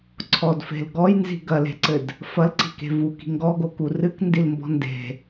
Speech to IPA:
ǀʰ ɔ d f e̤ l ɡ ɔ j n z i̤ ɡ ɐ l e̤ ǀ ɘ d | f ɐ l ǀ i̤ k e̤ v u k i̤ ŋ ɡ ɔ ɡ o k u r ɨ k n d i l m b ɔ̤ n d e̤

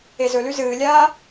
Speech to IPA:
e z ɵ l ʉ z ɨː lʲ aː

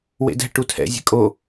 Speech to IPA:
w ḛ d ɛ̤ ʈ u tʰ ɛ̰ zʲ ɛ̤ kʼ o

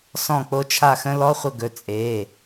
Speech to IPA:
s ɔ̃˥˨ k͡p o˦˥ t͡ʃʰ a˥˨ x ə̃˦˥ l ɔ˧˥˧ χʷ ə˥˨ ɡ ɵ˩˧˩ t͡sʼ e˩˧˩

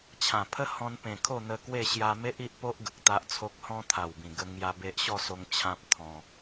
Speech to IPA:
t͡ɕʰ ã˨˩ pʰ ə˦ h ɔ̃˧ n p ẽ˨˩ kʰ o˥˧ n̪ ə˧ k w e˥˧ ɕ j a˧ m e˦ ʔ i˦ ʔ p o˦ ʔ ɡ ə˨ k̚ t̪ a˦ ʔ t͡sʰ o˦ k̚ h ɔ̃˦ t̪ʰ a˨˩ w b ĩ˨˩ ɡ ə˧ ŋ j a˧ b e˦ ʔ ɕ ɔ˥˧ s o˧ ŋ t͡ɕʰ ã˦ p̚ t̪ʰ ɔ̃˧

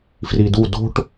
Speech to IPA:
f r i d u d o̤ ʈ

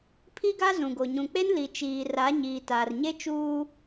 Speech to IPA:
pʰ i˦ ɡ a˦ z ũ˨ ɡ o˨ ɲ ũ˨ k͡p e˦ n l i˨ t͡ʃ iː˨ r a˨˦ ɲ iː˨ t aː˨ r ɲ e˦ t͡ʃ uː˦

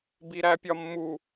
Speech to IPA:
b i ɾ æ pʲ ɒ mː u

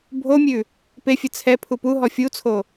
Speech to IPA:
bʱ o mʲ ʉ | p e fʲ ɘ t͡sʰ ɛ pʰ u p u ɦ ɔ fʲ u t͡sʰ o

